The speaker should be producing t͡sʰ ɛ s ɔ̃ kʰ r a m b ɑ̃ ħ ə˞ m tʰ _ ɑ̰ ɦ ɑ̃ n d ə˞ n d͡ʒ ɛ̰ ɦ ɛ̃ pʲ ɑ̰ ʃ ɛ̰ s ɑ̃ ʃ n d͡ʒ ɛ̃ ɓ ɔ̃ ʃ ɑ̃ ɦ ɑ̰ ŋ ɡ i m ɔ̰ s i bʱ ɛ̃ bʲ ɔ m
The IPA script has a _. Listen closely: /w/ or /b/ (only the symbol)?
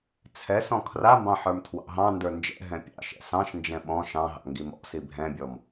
w